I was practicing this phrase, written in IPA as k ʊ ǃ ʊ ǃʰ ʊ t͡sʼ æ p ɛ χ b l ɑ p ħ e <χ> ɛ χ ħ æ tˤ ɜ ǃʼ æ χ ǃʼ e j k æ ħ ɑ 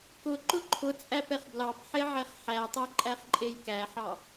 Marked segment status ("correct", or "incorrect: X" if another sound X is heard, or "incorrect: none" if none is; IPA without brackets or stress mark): incorrect: ʕ